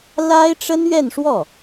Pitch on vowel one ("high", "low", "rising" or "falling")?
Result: high